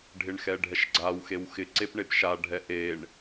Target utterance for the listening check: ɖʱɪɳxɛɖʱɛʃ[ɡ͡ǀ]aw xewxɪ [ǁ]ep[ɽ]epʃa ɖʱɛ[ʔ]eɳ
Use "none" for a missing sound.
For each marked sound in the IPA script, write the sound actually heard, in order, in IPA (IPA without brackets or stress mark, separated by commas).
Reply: ɡ͡ǀ, ǀ, ɳ, ʔ